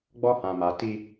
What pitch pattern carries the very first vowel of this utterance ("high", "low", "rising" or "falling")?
high